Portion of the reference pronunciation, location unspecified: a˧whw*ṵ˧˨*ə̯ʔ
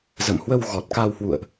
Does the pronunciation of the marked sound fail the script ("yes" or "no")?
no